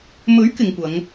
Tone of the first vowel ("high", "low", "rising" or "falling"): rising